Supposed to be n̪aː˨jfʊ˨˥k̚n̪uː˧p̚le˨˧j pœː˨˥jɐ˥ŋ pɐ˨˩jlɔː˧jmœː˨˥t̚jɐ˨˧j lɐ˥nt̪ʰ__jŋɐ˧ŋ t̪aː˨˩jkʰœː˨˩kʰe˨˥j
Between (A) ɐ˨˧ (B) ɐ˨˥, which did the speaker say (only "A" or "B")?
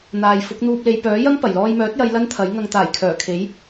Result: B